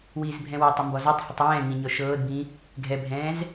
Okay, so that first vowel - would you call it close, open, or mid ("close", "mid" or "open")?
close